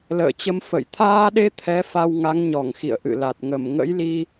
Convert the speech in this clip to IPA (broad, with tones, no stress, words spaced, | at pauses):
lə̰ː˧˨t͡ɕə˧m fə̰˧˨j t̪ʰaː˧ɗe˧ t̪ʰɛ˨˦ fa˧wŋa˨˦ŋɲɔ˧˩ŋxḭ˧˨ə̯ ʔɨ̰˧˨la˨˩t̚ ŋə˧˩mŋə̰˧˥jli˧